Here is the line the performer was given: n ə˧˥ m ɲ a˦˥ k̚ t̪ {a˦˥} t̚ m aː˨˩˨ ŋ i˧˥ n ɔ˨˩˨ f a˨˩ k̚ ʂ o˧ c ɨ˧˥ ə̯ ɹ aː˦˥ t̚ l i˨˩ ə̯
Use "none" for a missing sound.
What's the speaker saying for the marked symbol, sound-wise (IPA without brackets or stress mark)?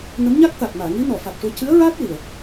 a˨˩